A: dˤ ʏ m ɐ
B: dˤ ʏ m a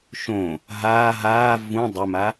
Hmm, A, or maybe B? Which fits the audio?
B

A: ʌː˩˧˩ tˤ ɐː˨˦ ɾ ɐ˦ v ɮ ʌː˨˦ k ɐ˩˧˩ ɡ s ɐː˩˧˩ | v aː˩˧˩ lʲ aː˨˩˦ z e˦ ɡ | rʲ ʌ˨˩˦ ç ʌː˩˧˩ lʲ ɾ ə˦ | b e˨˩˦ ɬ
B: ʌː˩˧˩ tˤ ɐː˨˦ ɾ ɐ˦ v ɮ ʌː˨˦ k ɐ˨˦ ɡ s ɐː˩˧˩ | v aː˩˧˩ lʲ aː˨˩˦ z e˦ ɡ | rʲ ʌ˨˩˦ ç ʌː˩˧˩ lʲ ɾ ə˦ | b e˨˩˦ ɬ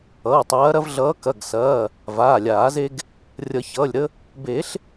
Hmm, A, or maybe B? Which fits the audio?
A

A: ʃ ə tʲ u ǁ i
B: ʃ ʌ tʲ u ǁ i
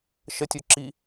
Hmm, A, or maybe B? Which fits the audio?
A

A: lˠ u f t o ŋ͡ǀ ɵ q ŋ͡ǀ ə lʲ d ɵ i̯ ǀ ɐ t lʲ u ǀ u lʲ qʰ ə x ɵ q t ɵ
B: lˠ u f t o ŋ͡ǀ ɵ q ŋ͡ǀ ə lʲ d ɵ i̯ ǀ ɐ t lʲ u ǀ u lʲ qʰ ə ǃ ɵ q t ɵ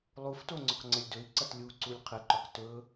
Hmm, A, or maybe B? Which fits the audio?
B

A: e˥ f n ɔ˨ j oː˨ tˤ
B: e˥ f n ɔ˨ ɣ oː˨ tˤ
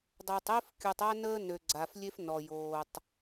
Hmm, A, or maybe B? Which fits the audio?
A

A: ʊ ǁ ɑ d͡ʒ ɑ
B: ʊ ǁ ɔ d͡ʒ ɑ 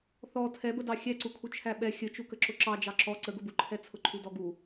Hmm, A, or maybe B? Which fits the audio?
A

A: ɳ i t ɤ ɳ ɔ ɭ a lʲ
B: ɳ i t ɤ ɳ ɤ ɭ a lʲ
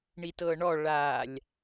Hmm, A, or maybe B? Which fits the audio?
A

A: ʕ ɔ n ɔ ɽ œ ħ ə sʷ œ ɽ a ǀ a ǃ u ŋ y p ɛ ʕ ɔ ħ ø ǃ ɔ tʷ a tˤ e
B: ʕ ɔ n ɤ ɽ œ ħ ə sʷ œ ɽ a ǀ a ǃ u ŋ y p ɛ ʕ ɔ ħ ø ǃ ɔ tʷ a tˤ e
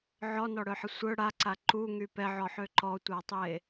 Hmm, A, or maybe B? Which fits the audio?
A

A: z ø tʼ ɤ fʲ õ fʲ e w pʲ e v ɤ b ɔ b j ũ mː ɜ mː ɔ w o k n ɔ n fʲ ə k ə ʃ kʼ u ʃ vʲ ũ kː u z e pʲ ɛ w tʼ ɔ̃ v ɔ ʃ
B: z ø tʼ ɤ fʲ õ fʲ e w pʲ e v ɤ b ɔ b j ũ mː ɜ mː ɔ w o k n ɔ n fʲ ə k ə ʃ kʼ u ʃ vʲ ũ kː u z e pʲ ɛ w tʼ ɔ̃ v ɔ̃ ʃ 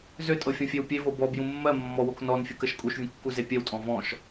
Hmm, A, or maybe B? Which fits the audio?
B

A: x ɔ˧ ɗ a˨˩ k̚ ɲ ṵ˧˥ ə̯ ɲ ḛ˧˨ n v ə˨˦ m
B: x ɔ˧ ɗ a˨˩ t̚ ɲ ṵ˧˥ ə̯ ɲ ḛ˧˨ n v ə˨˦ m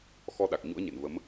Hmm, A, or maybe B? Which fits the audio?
A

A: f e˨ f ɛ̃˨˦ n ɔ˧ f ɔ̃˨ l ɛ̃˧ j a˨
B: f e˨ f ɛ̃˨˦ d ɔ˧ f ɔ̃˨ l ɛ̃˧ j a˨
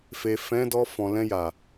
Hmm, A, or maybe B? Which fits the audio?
B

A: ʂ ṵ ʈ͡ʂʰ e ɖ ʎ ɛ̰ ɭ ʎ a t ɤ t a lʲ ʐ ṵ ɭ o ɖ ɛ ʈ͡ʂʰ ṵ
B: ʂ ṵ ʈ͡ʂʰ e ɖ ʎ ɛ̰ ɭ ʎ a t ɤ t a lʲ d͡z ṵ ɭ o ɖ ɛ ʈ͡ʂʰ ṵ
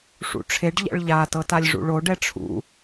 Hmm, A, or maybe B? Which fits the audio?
A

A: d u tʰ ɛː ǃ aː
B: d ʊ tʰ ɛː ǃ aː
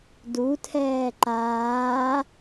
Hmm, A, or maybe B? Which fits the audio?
A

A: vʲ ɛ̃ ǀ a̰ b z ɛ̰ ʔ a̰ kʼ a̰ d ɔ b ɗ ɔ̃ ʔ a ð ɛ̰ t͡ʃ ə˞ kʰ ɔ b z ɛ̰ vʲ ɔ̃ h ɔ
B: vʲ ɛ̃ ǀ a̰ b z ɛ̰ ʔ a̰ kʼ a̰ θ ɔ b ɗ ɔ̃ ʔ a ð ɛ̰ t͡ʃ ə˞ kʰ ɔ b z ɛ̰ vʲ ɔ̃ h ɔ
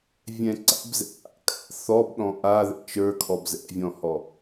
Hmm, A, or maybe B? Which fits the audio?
B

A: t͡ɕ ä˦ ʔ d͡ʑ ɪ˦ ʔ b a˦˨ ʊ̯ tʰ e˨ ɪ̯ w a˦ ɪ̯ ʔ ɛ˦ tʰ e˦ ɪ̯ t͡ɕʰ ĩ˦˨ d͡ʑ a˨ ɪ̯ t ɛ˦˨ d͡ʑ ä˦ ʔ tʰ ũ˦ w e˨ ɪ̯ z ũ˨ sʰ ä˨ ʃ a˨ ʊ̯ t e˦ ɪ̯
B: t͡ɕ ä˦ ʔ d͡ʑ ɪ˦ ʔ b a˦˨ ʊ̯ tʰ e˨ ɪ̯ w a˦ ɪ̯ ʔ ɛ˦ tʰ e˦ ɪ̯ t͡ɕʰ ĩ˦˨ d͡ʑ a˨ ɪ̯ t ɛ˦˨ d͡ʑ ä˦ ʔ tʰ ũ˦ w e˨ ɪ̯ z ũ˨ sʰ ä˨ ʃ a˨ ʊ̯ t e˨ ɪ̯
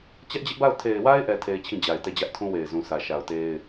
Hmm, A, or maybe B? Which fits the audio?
A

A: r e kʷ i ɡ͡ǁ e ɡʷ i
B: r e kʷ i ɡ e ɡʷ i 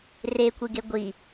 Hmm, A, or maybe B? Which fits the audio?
B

